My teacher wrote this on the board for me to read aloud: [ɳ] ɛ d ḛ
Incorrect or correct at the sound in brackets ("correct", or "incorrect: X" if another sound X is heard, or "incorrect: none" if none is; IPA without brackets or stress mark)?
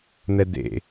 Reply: incorrect: n̪